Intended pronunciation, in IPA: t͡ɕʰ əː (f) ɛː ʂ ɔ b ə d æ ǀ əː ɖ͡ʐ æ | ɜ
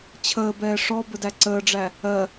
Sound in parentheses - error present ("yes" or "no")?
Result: yes